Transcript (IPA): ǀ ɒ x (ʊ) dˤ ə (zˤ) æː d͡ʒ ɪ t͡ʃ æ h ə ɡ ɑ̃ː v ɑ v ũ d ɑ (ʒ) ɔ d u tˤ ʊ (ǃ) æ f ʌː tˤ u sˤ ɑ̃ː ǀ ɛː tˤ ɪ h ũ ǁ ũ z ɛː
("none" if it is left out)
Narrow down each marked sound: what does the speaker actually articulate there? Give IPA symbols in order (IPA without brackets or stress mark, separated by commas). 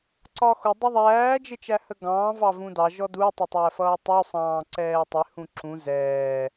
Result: ʊ, ðˤ, ʒ, tˤ